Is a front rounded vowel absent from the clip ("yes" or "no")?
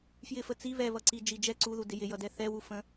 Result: yes